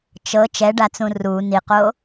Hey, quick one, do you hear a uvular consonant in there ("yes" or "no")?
yes